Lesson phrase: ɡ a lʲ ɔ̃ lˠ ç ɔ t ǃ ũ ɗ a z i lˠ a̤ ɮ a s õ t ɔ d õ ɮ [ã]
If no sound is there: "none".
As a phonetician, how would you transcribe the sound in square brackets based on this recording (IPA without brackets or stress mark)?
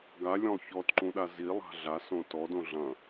ɐ̃